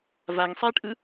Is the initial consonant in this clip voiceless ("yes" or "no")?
no